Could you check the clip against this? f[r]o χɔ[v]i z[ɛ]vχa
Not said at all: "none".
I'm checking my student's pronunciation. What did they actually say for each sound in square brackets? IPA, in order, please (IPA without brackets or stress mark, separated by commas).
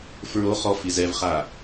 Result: ɹ, f, ɛ